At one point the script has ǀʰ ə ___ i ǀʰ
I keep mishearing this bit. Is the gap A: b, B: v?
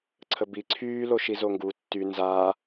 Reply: A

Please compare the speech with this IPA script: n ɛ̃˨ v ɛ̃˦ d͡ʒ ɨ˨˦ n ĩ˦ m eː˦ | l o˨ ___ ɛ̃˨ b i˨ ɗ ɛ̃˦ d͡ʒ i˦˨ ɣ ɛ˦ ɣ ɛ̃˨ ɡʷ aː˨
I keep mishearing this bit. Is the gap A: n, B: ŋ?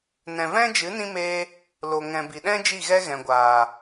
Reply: B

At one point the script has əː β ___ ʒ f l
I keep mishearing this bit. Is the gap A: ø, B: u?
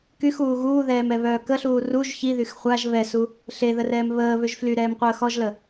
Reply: A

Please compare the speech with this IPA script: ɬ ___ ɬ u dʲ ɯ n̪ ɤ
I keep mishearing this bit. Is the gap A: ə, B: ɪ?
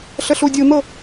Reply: A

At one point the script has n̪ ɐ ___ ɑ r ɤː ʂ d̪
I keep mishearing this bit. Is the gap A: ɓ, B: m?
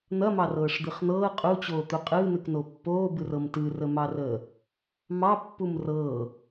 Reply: B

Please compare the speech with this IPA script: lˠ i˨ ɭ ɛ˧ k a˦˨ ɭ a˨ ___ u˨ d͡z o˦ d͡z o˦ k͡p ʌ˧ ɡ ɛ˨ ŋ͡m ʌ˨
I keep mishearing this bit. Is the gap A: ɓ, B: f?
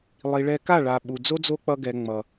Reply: A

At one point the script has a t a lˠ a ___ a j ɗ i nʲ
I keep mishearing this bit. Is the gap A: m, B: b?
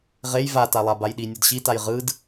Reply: B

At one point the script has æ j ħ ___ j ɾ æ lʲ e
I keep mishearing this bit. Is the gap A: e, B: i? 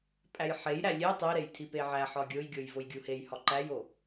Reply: A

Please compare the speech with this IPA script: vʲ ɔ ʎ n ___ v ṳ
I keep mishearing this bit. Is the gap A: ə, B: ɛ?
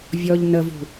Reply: A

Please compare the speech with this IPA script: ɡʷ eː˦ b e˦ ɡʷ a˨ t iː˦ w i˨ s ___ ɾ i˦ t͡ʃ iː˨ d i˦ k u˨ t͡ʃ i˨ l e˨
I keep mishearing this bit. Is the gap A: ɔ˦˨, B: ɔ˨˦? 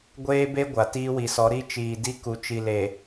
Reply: B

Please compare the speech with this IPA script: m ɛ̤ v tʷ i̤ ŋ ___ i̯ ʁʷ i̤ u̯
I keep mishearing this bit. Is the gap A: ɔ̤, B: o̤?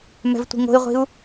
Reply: B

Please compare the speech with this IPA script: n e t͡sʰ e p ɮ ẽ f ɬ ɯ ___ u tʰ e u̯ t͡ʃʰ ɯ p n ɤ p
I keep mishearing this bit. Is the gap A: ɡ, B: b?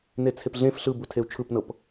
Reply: B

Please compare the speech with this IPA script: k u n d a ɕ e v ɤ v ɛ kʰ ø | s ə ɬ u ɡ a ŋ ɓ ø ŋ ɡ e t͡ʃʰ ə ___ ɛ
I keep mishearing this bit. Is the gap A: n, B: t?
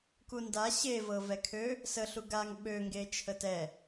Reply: B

